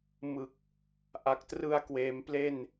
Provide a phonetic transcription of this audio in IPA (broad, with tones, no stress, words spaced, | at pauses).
mɯ˨˩k̚ | ʔa˨˩k̚trɯ˧a̯kweː˩˦mple˥˩n